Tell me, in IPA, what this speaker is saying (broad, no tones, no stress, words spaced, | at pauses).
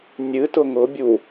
nʲɨ tʊŋʊ bʲu